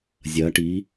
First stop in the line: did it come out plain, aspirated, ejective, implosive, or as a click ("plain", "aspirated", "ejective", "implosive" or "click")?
plain